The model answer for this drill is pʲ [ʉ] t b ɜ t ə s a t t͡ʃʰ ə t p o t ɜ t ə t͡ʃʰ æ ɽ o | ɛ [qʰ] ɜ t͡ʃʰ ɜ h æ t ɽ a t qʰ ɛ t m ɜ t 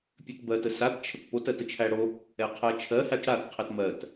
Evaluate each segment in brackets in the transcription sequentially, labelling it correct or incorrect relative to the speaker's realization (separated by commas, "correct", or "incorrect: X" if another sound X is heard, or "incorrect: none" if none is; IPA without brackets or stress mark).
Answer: correct, correct